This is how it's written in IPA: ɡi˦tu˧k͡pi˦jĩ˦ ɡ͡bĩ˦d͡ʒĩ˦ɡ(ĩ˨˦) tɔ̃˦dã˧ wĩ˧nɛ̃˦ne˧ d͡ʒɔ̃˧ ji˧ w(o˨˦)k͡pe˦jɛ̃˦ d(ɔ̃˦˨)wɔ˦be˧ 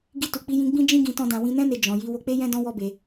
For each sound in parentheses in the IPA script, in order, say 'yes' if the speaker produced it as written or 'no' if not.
no, no, no

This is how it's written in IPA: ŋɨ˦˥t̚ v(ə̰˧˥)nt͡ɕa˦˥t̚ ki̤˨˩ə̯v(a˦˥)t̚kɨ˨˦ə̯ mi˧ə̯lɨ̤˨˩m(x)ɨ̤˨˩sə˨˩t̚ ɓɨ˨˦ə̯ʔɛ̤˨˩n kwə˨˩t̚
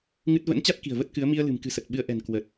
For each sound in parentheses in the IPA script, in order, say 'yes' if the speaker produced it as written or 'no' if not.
yes, no, no

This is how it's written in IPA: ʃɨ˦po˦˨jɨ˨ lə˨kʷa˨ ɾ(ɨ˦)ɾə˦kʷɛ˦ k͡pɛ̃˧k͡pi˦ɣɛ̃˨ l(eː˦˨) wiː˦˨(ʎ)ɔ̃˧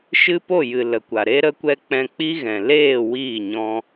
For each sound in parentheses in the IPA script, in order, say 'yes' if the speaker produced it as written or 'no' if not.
no, yes, no

